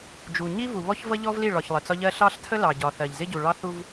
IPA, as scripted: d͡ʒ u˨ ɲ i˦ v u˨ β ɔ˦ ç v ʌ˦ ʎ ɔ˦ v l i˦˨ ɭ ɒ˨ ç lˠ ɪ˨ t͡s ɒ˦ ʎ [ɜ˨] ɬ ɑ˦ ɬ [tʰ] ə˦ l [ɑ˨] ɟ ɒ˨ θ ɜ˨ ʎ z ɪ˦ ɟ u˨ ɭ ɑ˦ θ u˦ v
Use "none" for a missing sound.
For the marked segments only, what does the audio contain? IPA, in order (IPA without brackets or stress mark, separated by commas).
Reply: ɜ˦, tʰ, ɑ˨